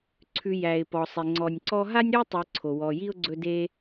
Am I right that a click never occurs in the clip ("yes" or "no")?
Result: no